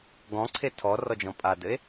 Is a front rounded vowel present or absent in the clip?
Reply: absent